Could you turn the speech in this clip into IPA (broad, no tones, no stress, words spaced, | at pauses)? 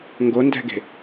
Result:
ŋɡondɛ̤ɡe̤